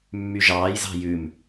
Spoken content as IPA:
mː y ʒ ɑː j z ɑ̤ j ʉ m

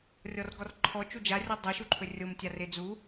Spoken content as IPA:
rʲ ɔ r ɡ ɔ r ǃʰ ɔ t͡ʃ u d͡ʒ a rʲ ɔ dˤ ɵ ʃ u ǃʰ ɵ rʲ o m tʲ a r e d͡z u

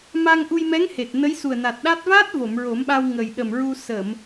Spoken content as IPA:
m a˧ ŋ ʔ u˧ j m ɛ˧˥ ŋ h e˨˩ t̚ n ə˧˥ j s u˨˩ ə̯ n a˨˩ t̚ ɗ a˦˥ t̚ v aː˦˥ t̚ v o˨˩˨ m ɹ o˨˩˦ m ɓ a˧ w ŋ ə˨˩ j ɗ ə˨˩ m ɹ u˧ s ə˨˩˨ m

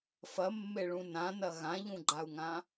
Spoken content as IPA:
f ɐ mː e ɭ ũ n ã n ɐ ɣ ã ʎ ũ ɡ͡ǃ a u̯ ŋ ã

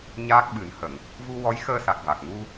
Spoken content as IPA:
ɲ aː˦˥ k̚ ɓ ɨ˨˩˦ n h ə˨˩˨ ŋ | v u˧ w ɔ˧˥ j x əː˧ s a˨˩ k̚ v a˨˩ k̚ ŋ u˧

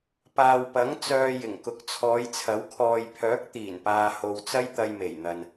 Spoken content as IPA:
p aː˨ w p ɐ˨˥ ŋ t͡s œː˧ j ɪ˨˩ ŋ k ʊ˨ k̚ t͡sʰ ɔː˨˧ j t͡sʰ ɐ˨˥ w kʰ ɔː˨ j pʰ œː˨˥ k̚ t̪ iː˨˩ n p aː˨ h o˨ w t͡s ɐ˥ j t̪ ɐ˧ j m e˨˩ j n̪ ɐ˨ n

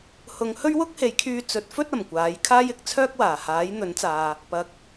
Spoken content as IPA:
h ʊ˨˧ ŋ h ɵ˥ ɥ w ʊ˥ k̚ h e˨˧ j kʰ yː˧ t͡s ɵ˨˥ t̚ f ɵ˥ t̚ ɐ˨˩ m kʷ aː˨˥ j kʰ aː˥ j ɪ˨˥ k̚ t͡sʰ œː˥ k̚ w aː˨˩ h aː˨˥ j n̪ ɵ˨˥ n t͡s aː˨ | p ɐ˨ k̚

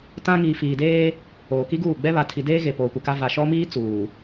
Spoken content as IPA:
t ã˦ ŋ iː˨ f iː˨ d eː˦ | oː˨ k i˦ ɡ uː˦˨ ɡ͡b ɛ˦ β a˨ tʰ i˨ d eː˦ ɣ e˨ p oː˨ kʷ ɪ˨ k a˦ v a˨ ʃ ɔ˦ m iː˦ t͡s uː˨

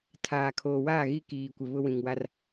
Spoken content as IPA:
tʰ aː˨ kʰ oː˨ w aː˦˨ ɣ i˦ k iː˨ kʷ ɪ˨ β ʊ˦ w ĩ˨ ŋ w a˦ r

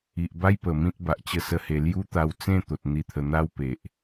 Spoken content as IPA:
i˨ ʔ b a˦ j p ə˨˩ m ĩ˦ t̚ b a˨ ʔ t͡ɕ ə˥˧ s ə˦ h e˧ l j u˦ t̪ a˧ w t͡s ẽ˥˧ t̪ o˨ t̚ n̪ i˧ t̪ʰ ə˧ n̪ a˦ w p e˨ ʔ

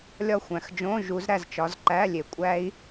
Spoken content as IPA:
lʲ ɒ˦˨ xʷ æ̃˨˩ x d͡ʒ õ˧˥˧ ʒ u˨˦ z ɾ æ˦˨ z t͡ʃ ɒ˨˦ z ǃ æ˧˥˧ lʲ e˨˩˦ kʷʼ æ˦˥ i̯

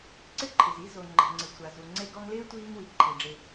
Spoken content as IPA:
ǀ ɪ˥ ǃʰ ɪ˩ z i˦ z o˩ ŋ͡ǃ ɛ̤˩ ŋ͡ǀ ɪ˩ sʷ a˩ z u˩ ŋ͡ǀ e˦ ɡ ɔ˦ ŋ l ɪː˥ tʷ iː˥ ŋ w i˩ ǃʰ i˩ ɖ͡ʐ e˨

